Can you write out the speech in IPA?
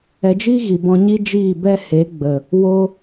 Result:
ɛ˧ d͡ʒ iː˦ ɣ i˨ b ɔ̃˧ ɲ i˦ d͡ʒ iː˦˨ b ɛ˦ h e˨˦ ɡ͡b ə˨ | w o˦

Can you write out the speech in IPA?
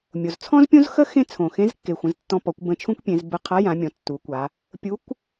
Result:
mʲ o˩ z t͡sʰ ɔ̃˥ z pʲ õ˥ z x ə˥ x ẽ˥ t͡sʰ õ˩ x ẽ˧˥ z kː e˩ xʷ ə̃˩˧ z tː ɔ̃˧ p ɔ˩˧ kʷ b ə̃˧ t͡ʃʰ ũ˥ kʷ pʲ ẽ˩˧ z b ə˧ qʰ a˧˥ j ã˩˧ mʲ ɔ̃˩˧ tː u˩˧ kʷ a˩˧ | pʲ u˧˥ kʷ

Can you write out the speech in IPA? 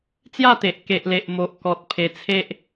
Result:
t͡s j a˥˧ t̪ e˨ ʔ k e˨ ʔ l e˨ ʔ m o˨ ʔ k ɔ˨ t̚ pʰ e˧ t͡sʰ e˦ ʔ

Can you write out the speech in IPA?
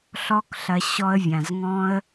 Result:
ɬ ɔ˦ k ɬ ɐ˧ ɕ ɔ˧ ə̯ vʲ ã˨ z ŋ ɔ̃˦ ə̯

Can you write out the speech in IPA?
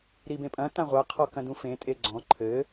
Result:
ɾ i b ẽ pʼ ɐ̃ t ã ʁʷ a qʰ ɔ k ɐ̃ d ũ f ẽ tʼ e ɡ͡ǀ ɔ̃ ǃʰ ɘ

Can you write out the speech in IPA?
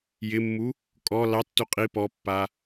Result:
j ɪ mː u | kʼ ɔ l ɑ tː u qʼ i p ɔ pː a

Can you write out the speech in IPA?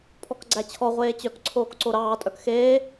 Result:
pʰ ɔ k ɡ͡ǀ æ t͡ɕʰ ɔ ʁʷ eː t͡ɕ œ k ǀʰ oː k ǀ o ɾ ɑː tʼ œ k x eː

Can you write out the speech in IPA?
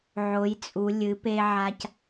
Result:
ʕ o˩˧ j t͡sʼ u˩˧ lʲ ɨ˩˧ p e˧ ʕ a˧ c

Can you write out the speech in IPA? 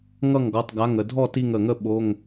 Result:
ŋ ʌ˥˩ ŋ ɡ ɔ˩˧˩ tˤ ɡ a˩˧˩ ŋ ə˩ dʱ ɔ˥˩ t i˧˩ ŋ ə˩ ŋ ə˥˩ ɓ o˩˧˩ ŋ

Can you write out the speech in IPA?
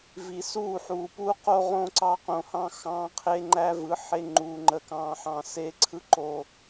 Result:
v i˨ s uː˦˨ ħ uː˨ p uː˦ q o˦ ʁ õ˦ ǀ ɑ˦ q õ˨ h ɑ̃˦ x ɑ̃ː˦ qʰ e˦ ŋ͡ǃ æ˦ v ɯ˨˦ ħ e˦ ŋ͡ǃ uː˨ ŋ͡ǃ ə˨ k ɑ̃ː˨ ħ ɑ̃˨ s eː˦ ǀʰ ɯ˦ ǃ o˦

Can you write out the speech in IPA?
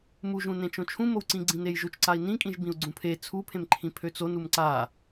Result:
m u ʒ ũ n ẽ t͡ʃ õ t͡ʃʰ ũ m o w ǀ ĩ ɡ͡ǀ ĩ n e j ʒ u t͡ʃ ǀ a i̯ n ĩ kʼ ĩ ʒ b ĩ u̯ ɡ͡ǀ ũ pʰ e t͡sʰ u pʰ ẽ m ǃʰ ĩ pʰ ø t͡s o n u m ǀ a

